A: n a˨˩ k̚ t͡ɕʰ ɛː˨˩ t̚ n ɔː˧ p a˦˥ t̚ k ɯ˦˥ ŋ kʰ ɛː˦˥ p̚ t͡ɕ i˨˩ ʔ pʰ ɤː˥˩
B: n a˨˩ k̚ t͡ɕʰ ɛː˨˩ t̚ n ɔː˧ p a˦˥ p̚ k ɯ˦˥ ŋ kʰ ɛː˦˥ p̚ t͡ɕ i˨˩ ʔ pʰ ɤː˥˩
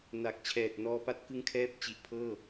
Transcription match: A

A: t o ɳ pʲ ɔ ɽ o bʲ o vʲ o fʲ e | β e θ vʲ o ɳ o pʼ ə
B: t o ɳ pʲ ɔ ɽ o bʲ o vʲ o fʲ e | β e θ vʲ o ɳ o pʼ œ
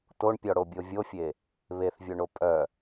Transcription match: B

